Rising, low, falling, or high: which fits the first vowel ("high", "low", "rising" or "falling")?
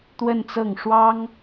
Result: falling